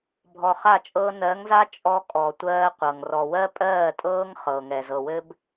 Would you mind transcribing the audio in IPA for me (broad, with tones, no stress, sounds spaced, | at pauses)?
bʱ ɔ˨ χ a˦˨ t͡ʃʼ ɤː˦ n ɜ˨˦ ŋ z a˦ t͡ʃʼ ɔ˦ kʼ ɔ˨ tʷ ɜː˦ qʷ ɤ˨ ŋ r ɔ˨ w ɜ˦ pʼ ɜː˦˨ tʼ ɤː˦ ŋ χ ɤː˨ ŋ ɛ˨ z ɤ˨ w ɘ˦ b